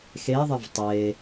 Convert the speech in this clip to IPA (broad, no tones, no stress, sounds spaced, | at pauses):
x e ðˤ ɪ v tˤ e